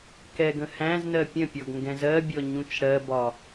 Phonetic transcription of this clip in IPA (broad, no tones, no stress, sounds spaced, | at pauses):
k ɛ ɡ ə̃ h æ̃ z n ɜ pʲ ə̃ pʲ ɔ ɡ ŋ ɡ ɛ̃ z ɜ bʲ ɔ ɲ ũ t͡ʃ ɽ ɜ b ɒ